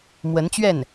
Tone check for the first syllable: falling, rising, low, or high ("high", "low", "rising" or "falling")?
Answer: rising